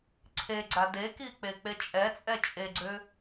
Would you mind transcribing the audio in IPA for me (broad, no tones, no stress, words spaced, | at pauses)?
ǀʰe ɡ͡ǀadeki k͡pek͡pet͡ʃʼɛt͡sʼɛ t͡ʃʼeɡ͡ǀʏ